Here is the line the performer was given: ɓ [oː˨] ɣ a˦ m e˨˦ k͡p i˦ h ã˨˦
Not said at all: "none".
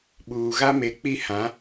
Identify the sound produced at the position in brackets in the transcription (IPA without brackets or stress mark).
uː˨